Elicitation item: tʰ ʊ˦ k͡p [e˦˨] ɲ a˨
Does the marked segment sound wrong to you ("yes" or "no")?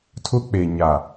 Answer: yes